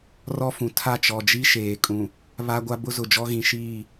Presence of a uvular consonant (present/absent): absent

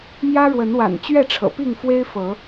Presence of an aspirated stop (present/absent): present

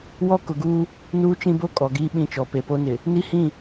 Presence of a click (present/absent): absent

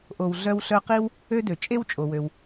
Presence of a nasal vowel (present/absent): absent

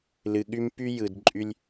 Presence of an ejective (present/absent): present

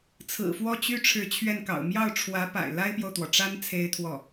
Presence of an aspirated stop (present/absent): present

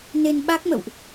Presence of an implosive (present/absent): present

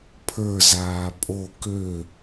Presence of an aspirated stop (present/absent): present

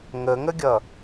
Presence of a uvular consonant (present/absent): absent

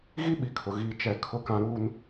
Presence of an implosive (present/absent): present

